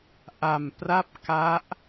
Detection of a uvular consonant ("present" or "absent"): absent